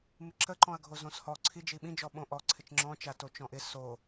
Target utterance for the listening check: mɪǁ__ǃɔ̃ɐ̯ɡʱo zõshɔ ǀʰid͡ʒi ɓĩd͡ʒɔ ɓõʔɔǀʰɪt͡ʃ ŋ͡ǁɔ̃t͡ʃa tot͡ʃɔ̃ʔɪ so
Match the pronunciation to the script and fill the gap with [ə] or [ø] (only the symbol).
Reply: ə